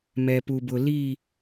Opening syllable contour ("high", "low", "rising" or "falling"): low